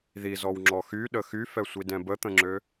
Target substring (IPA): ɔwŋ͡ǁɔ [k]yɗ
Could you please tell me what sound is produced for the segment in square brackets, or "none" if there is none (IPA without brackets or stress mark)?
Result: x